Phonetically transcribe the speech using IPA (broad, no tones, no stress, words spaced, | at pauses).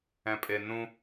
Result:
ɛ̃pʼenũ